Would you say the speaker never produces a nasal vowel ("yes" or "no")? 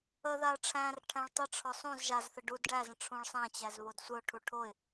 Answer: no